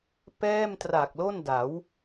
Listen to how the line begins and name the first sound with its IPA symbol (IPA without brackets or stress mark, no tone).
p